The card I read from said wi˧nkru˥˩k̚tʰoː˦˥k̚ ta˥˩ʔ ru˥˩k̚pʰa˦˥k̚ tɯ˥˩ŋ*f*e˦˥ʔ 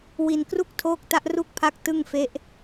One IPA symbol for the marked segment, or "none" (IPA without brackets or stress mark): f